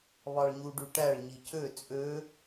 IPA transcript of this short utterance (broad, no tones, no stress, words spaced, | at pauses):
βɑɭɲuɖyʈæɭ ɲicø t͡sʼø